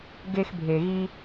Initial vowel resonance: oral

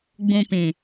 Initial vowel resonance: nasal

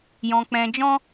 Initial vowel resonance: nasal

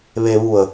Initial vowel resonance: oral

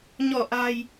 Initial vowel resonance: oral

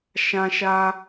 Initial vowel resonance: nasal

